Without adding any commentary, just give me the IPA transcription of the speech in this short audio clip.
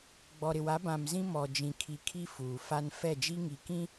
ɡ͡bɔ˨ɾɪ˨wa˨˦ bã˨mzĩ˦ mɔ˨d͡ʒĩ˨ kʰi˨kʰi˦ fuː˨ fa˦n fɛ˦˨d͡ʒi˦ŋi˨kĩ˦

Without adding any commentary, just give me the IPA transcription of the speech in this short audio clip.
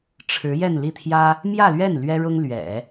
ʈ͡ʂʰɻ̩˧˥jɛ˥˧nli˥˩t̪ʰjä˥ | mjä˥˧lɥɛ˥˩n lɥɛ˥ɻʊ˥ŋlɥɛ̰˨˩˦

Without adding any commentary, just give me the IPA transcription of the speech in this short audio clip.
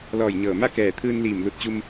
lɔː˧˩jɲɤː˧˩ma˥˨ kɛː˧˩t̪ʰɯː˧n liː˧˩m lu˧t̚t͡ɕu˧m

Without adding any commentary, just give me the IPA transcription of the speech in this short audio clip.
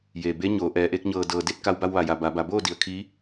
je˩ be˧˥ɲoː˩˧ ʔɛː˩˧ʔe˧˥k̚ɲɤː˧˩ dɤː˩de˥˨t̚ ka˧wba˧wʋa˩ja˩ ba˩˧ba˩˧ boː˥˨di˩ə̯ kʰiː˧˥

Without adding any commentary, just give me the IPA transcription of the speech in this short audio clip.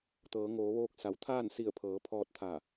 t̪ɤː˩˧ŋoː˩˧ʋoː˧k̚ sa˩˧wt̪ʰaː˥˨nsi˧˩ə̯pʰɤː˩˧ pʰɔː˧t̚t̪ʰaː˧˩

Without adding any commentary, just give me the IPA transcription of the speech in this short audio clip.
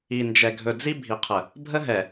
i˨nd͡ʒɛ˨ɡʱɵ˨ d͡zi˦bʱi˨qʰə˨ | bʱə˦ɦɛ˨

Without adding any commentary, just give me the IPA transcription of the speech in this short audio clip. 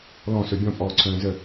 lɔ̃sɵ bʲɔ̃pʼɔːǀʰœ̃ː zə

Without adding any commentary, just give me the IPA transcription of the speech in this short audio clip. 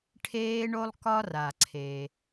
ʈʰeː˦ɳo˦lˠ kɒ˦ra˩ǀʰe˩

